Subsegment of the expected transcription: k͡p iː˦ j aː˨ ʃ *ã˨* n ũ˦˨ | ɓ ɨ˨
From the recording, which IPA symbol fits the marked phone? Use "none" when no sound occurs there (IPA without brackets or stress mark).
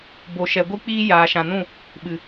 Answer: ã˨